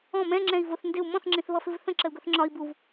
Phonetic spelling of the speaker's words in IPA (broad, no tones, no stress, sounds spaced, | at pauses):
ɔ̃ m ɛ̃ ŋ͡ǁ ɛ̃ i̯ v ʊ θ n d ɪ u̯ m ɔ̃ θ ŋ͡ǁ ĩ θ β ʌ f ɪ v θ ə̃ ǁ ə u̯ ɡ ʊ θ ŋ͡ǁ ɒ i̯ b u v